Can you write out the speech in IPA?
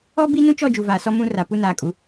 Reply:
ɔ˦ b i˦ n ũ˦ t͡ʃ ɔ˦˨ d͡ʒ u˨ v aː˨ s ɔ˦ m ũ˦ r a˨ p u˦ n aː˨ kʼ u˨˦

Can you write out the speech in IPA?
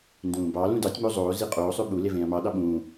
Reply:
n d ũː b ɑ l ũ d ɑ tʲ m o zˤ oː z i qʼ oː sˤ ø ɓ u l e v ẽː ɐ̯ m ɑ ɗ ɑ ɓ ũː

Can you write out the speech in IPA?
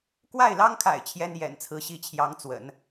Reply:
k w a˥˩ ɪ̯ l ɑ˥ ŋ kʰ a̰˨˩ ɪ̯ t͡ɕʰ j ɛ˥ n j ɛ̰˨˩ n t͡sʰ ɹ̩˧˥ ɕ i˧˥ t͡ɕʰ j ɑ˧˥ ŋ t͡s w ə̰˨˩˦ n

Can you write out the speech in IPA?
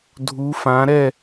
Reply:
dʱ u˨˦ f ã˨˦ ɾ ɛ˥˨

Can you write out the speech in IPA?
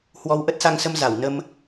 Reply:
h w ɔ˧ w ʔ ə˦˥ t̚ s a˧ ŋ s ə˧ m z a˧˩ w n ə˧ m

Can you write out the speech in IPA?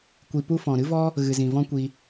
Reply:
kʷ i˧ p u˦ f ɔ̃˨ ɾ ɨ˦ v ɔ˦ | ɣ ɨ˨ z ĩ˨ v ɔ̃˦ kʷ i˧

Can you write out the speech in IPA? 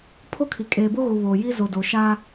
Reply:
pʰ o˦ kʰ i˨ kʼ eː˨ b o˦ ɣ u˨ β oː˨ j i˦ z o˨ d o˨ ʃ aː˦

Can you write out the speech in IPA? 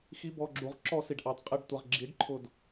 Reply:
x i˦ b ɔ˧ ɡ͡ǁ u˨˦ ʁ ǁ ɔ˧ s i˨ ɖ ʔ ɑ˨ d qʼ ɪ˧ ɖ tʷ ɪ˨ ʁ ɡ͡ǁ i˨˦ ɖ ǃʰ ʊ˦˨ d

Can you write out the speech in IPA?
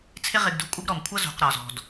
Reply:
t͡sʰ ɪ˦ ʁ ɪ˨ ɡ d ṳ˨ kʷʼ ɪ˦ ɡ ɾ ɔ˩ m kʷʰ ʌ˦ z ṳ˩ q ɾ ɒ˩ z ɔ̤˩ d

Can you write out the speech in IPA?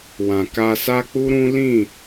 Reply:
w ã˨ k a˧ s a˦ k͡p u˦ ɾ ũ˦ l ĩ˦˨

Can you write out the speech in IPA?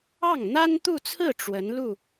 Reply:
ɑ˥˩ ŋ n̪ a˥ n t̪ u˥˧ t͡sʰ ɹ̩˥˩ ʈ͡ʂ w ə˧˥ n l u˥˩

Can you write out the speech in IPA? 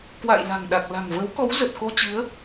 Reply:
k w a̰˧˨ j l a̤˨˩ ŋ ɗ a˨˩ k̚ l a̤˨˩ ŋ v ə˨˦ w k ɔ˨˦ w z ə˨˩ t̚ k o˧ t͡ɕ ɨ˨˦ ə̯

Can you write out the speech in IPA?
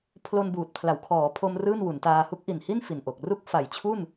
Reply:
pʰ l o˧ n b uː˨˩ t̚ pʰ l a˨˩ w kʰ ɔː˩˦ pʰ o˧ m r ɯː˥˩ n w u˩˦ n t aː˧ h u˦˥ k̚ ʔ i˨˩ n h i˥˩ n f i˨˩ n ʔ o˨˩ k̚ r u˥˩ k̚ f a˨˩ j t͡ɕʰ u˥˩ n

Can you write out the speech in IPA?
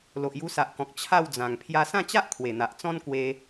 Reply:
l o˨ ʔ j u˧ s a˨ ʔ k ɔ̃˨ k̚ t͡ɕʰ a˥˧ w d͡z ã˨˩ ŋ pʰ j a˧ s ã˥˧ t͡ɕ a˦ ʔ kʰ w e˨˩ n̪ a˨ ʔ t͡s ɔ̃˦ n k w e˧

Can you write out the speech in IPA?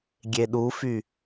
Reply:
ɡʲ e ɗ u f y

